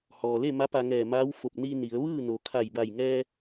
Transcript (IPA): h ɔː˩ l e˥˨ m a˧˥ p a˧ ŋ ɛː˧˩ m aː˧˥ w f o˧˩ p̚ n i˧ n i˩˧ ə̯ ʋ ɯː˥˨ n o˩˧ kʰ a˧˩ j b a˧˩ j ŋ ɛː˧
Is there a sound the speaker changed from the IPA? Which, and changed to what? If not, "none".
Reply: none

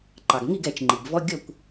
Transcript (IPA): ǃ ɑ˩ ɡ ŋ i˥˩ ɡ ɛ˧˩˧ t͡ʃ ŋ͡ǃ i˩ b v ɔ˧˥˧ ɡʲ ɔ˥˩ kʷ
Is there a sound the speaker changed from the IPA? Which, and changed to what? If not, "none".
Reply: none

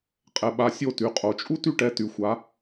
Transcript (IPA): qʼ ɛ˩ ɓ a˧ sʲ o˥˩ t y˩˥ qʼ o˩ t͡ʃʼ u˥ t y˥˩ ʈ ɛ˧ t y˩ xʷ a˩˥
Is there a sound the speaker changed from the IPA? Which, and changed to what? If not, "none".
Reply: none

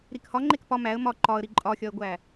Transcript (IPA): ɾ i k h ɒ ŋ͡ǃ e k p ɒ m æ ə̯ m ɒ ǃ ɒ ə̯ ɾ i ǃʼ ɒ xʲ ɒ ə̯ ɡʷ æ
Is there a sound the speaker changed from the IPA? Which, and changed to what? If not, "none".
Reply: none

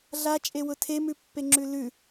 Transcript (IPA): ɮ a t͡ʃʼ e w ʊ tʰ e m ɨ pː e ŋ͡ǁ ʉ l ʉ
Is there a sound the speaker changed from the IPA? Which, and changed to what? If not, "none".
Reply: ɨ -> ʉ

